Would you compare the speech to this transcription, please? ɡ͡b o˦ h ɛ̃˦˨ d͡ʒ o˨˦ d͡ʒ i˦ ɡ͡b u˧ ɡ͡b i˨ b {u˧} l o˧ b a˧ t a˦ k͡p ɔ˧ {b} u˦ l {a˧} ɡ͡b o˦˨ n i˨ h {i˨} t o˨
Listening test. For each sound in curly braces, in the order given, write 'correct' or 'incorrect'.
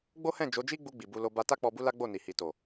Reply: correct, correct, incorrect, correct

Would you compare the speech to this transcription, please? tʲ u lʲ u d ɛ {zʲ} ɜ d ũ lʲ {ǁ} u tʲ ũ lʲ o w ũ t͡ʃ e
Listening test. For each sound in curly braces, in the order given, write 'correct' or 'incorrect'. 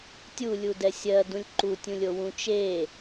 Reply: incorrect, incorrect

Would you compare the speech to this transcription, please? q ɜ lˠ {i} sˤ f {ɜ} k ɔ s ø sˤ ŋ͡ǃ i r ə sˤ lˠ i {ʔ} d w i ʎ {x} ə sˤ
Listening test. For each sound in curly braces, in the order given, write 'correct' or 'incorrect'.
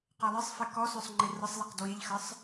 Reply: incorrect, incorrect, incorrect, correct

